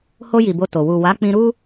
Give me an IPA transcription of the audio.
h o˧ j i˨ b o˧ t o˨ w u˨ w a˨˦ k͡p ĩ˧ ɾ u˦

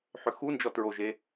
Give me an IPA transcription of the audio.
ħ ʏ x u n d͡ʒ ɔ t ɹ o ʒ e

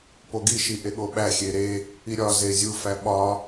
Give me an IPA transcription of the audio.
p o ɡ i ʃ i ʔ e ɠ o ɓ æ xʲ e ɾ e | i ɾʲ ɒ z e zʲ u f æ ɓ ɒ

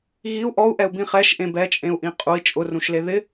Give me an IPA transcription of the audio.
ɣ i u̯ ʔ ɔ u̯ ʔ ɛ u̯ b ĩ χ ɛ ʃ ʔ ẽ b ɛ t͡ʃʼ ẽ u̯ ʔ ĩ qʼ u i̯ t͡ʃʼ ʊ r ũ ʃ l e ð ɪ

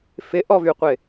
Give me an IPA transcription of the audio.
f ɪ ʔ ɔ v y qʷ ɪ

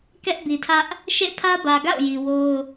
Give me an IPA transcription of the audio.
k ɛ˦ ʔ b i˨ tʰ ä˦ ʔ | ʃ ḛ˦˨ pʰ ä˦ b ä˨ ɡ a̰˦˨ ʊ̯ j i˨ w o˦ ʊ̯

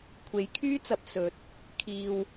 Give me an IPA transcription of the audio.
kʷʰ e˨˥ j kʰ yː˥ t͡s ɐ˨ p̚ s ɵ˨˥ t̚ | kʰ iː˨ w

